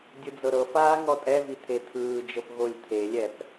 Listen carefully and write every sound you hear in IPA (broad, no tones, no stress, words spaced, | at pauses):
dʲɯd͡zɤɾɤfaː ŋɔtʼɛvi t̪ʰet̪ʰɯːd͡ʒɤp ɣolʲt̪ʰelʲɛp